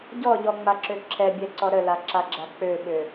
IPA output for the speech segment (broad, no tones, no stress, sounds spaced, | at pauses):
ɟ ɔ ʎ ɔ ŋ͡m a ǁ ø ǁʰ ɛ bʲ ɛ ǀ ɔ ɾ ə l a ǁ a ɡ͡ǁ a k͡p ø ɓ ø